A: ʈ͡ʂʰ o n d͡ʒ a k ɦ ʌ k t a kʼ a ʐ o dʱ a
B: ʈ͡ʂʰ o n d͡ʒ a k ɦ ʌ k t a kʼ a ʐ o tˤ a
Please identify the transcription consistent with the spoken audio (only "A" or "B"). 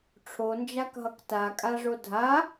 A